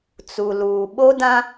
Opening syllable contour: low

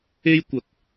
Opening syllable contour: high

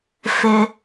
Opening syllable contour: low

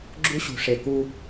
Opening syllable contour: high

